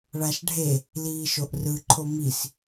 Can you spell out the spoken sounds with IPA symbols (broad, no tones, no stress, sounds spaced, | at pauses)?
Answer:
ɭ a ʃ ɖʱ e | l iː ʃ o ʔ r ɯ ǃʰ o m i s